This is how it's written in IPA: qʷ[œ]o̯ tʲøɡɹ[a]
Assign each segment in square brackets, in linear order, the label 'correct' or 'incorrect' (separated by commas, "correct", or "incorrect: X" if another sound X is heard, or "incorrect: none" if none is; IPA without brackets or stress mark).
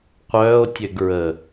incorrect: œː, incorrect: ə